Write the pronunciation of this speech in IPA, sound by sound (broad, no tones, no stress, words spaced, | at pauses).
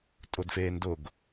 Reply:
tʼʊdfeːndʊɡ